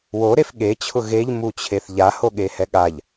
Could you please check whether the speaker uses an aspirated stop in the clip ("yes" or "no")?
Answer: yes